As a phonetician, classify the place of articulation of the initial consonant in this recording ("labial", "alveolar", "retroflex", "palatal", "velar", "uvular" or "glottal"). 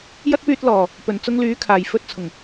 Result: palatal